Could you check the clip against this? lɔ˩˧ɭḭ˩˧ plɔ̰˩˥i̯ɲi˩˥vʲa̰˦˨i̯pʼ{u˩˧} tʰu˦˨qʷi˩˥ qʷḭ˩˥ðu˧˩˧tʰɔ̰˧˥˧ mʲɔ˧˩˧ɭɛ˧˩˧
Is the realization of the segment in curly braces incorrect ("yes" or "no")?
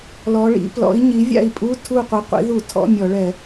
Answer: yes